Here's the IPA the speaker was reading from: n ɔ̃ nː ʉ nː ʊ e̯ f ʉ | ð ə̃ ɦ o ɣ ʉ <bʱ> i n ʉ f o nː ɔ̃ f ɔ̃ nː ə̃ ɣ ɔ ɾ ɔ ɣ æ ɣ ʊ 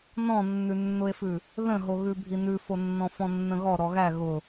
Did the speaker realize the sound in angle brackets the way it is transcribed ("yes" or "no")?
yes